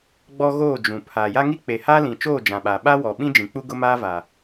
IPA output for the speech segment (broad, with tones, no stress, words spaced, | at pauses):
ɡ͡bɔ˦ɣoː˦˨ d͡ʒũ˨ pʰa˨ ja˦ŋi˦ k͡pe˨haː˦lĩ˨t͡ʃoː˦˨ d͡ʒã˨ɓaː˨ ɓa˦wɔ˨ ɓĩ˦d͡ʒĩ˨k͡pu˦ ɡʊ˦maː˦ va˨